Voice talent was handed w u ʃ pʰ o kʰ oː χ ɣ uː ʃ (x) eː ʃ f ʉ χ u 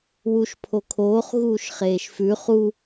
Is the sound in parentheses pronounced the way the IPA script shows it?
no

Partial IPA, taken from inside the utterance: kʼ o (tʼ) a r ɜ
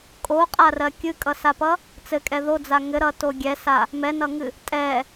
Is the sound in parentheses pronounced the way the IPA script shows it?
no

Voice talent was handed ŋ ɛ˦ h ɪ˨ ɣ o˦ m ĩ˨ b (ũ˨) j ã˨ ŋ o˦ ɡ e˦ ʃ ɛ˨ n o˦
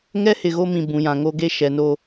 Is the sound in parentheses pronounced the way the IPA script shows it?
yes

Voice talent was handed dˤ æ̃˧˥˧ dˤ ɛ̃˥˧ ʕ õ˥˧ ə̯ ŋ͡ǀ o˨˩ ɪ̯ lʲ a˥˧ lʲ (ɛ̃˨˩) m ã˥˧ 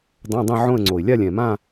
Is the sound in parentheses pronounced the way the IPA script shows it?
yes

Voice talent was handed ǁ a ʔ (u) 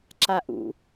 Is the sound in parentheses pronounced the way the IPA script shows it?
no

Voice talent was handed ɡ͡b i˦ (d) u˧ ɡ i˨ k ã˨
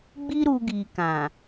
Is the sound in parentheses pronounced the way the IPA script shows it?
no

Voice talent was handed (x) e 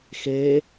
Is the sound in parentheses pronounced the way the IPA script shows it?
yes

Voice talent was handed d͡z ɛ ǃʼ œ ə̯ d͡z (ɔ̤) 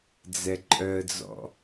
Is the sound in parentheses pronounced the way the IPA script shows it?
no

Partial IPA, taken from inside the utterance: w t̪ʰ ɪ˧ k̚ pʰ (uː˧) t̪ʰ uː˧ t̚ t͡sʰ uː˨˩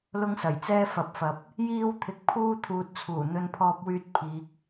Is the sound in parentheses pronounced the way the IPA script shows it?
no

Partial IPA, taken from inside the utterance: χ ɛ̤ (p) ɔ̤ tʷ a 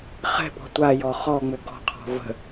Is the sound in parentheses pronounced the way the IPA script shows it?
yes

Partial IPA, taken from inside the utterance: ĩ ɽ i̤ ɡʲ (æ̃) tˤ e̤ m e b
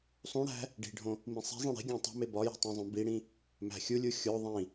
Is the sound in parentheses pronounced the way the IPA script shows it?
yes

